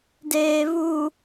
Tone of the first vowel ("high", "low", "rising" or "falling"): low